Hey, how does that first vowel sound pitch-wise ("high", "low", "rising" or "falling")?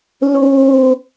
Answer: low